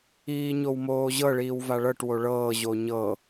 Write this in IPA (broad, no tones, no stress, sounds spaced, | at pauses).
iː ɲ o w m oː ʑ ɤ ɭ iː w v a ɭ ɤ ʈ w o ɭ ɤː ʑ o ɲ ɤ